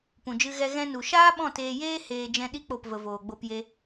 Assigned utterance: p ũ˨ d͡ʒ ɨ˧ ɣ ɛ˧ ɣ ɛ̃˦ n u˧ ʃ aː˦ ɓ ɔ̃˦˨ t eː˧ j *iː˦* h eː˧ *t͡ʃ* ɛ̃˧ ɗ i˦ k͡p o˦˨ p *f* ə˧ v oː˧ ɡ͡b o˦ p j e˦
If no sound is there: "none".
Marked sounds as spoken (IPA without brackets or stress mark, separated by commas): eː˦, d͡ʒ, v